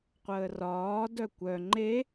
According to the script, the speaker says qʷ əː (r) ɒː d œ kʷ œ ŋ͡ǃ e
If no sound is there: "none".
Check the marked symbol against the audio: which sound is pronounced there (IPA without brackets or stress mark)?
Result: r